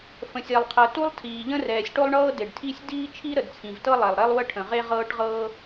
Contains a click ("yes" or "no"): no